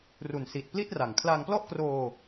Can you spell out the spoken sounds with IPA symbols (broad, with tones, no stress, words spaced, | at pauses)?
ru˨˩nsi˨˩t̚pli˥˩t̚ra˨˩ŋ kʰla˧ŋplɔ˥˩ʔkroː˧